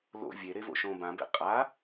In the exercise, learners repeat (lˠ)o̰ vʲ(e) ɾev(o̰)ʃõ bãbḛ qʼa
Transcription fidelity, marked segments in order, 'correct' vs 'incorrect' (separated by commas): incorrect, correct, correct